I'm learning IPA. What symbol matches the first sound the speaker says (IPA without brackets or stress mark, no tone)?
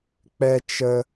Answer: k͡p